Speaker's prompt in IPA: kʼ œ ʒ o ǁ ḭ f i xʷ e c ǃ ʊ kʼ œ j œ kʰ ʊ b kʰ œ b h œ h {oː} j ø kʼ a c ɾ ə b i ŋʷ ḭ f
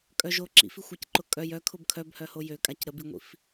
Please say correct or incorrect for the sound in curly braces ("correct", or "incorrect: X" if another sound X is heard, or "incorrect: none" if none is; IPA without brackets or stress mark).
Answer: incorrect: o